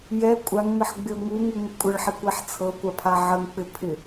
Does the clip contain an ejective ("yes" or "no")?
yes